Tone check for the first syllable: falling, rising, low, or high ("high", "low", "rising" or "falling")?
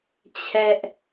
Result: high